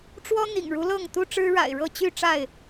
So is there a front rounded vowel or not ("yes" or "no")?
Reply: yes